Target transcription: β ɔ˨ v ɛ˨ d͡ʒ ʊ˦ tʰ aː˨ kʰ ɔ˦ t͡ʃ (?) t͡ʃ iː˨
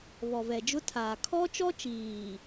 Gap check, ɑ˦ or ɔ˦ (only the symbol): ɔ˦